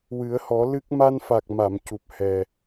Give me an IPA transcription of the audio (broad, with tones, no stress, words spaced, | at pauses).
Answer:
wɨ˨˩˦ə̯hɔ˨˩˦ lɨ˦˥k̚ ma˧nfa˨˩k̚ ma˨˩˨mcu˨˩p̚ hɛ˨˩